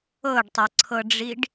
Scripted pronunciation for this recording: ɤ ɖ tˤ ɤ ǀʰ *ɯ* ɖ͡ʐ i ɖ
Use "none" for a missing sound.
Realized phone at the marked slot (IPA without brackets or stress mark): ɤ